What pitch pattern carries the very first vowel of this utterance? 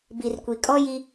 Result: low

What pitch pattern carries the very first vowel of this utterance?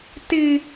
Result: high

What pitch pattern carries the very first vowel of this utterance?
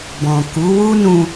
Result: low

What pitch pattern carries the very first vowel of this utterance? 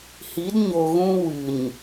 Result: rising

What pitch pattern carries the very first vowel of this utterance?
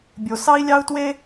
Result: low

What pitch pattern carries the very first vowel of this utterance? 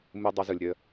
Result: high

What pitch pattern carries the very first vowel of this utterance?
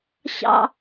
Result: high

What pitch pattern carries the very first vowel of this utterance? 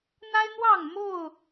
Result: high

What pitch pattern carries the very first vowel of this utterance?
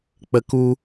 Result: high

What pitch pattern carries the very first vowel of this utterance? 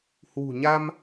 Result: low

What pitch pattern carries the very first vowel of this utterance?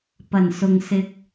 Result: low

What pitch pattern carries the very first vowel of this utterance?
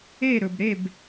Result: falling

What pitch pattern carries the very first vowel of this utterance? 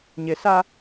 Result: low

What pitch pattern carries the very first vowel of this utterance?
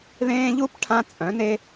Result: high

